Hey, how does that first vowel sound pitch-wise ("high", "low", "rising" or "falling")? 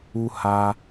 high